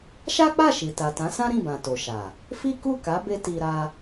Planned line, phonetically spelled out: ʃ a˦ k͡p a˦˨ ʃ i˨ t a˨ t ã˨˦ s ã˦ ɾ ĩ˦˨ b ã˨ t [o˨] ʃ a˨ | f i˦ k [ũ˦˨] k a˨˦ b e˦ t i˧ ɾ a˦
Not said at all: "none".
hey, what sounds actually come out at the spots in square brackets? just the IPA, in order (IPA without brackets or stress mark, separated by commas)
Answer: o˨, u˦˨